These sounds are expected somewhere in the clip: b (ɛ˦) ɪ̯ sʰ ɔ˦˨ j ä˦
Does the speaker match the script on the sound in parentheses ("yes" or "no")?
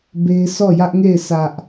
no